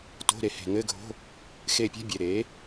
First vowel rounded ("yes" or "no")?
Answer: yes